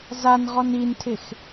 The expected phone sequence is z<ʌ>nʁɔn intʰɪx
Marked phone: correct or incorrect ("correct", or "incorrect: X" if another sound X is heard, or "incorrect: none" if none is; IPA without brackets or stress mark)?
incorrect: a